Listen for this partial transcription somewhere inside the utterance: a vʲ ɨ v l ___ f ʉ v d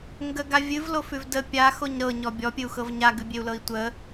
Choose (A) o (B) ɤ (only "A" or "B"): A